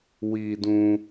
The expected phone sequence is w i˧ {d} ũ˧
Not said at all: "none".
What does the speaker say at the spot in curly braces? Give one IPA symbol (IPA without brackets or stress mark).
d